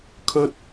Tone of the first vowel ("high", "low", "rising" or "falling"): high